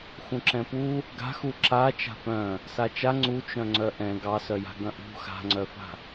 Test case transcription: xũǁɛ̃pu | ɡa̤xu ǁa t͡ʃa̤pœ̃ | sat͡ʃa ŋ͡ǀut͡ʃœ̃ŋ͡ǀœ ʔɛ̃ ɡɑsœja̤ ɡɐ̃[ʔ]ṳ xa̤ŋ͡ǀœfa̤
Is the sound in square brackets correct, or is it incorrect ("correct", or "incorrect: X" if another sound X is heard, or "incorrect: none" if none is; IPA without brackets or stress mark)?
correct